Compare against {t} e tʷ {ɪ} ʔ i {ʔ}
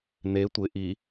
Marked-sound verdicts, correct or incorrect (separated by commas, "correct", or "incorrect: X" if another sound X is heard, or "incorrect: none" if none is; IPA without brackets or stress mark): incorrect: n, correct, incorrect: none